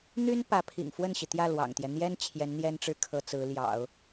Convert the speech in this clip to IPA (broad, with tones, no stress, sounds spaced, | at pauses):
n̪ y˥ n p ä˧˥ pʰ ḭ˨˩ ŋ f w ə˥˩ n ɕ i˩ t̪ j ä˥˩ l w ɑ̰˨˩ ŋ t̪ j ɛ˦ n̪ j ɛ˥ n t͡ɕʰ j ɛ˧˥ n n̪ j ɛ˥ n ʈ͡ʂ ɻ̩˥˩ kʰ ɤ˧˥ t͡s ɹ̩˧˥ l j ɑ̰˨˩˦ ʊ̯